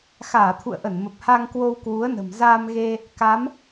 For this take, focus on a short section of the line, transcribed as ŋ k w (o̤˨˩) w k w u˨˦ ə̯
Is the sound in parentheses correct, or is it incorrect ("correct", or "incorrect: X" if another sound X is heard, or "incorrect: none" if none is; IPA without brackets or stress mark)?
incorrect: o˧